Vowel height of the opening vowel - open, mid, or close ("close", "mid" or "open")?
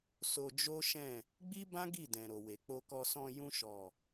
mid